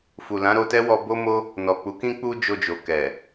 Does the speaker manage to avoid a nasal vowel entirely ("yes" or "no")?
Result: no